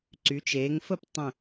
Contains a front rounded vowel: yes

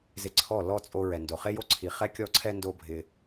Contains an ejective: yes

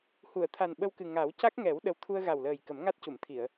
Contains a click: no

